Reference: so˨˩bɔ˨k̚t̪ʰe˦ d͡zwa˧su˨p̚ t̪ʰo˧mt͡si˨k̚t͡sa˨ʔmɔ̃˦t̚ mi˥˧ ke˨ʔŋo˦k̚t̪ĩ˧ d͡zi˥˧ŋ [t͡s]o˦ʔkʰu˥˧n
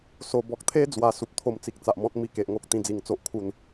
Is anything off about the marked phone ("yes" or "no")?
no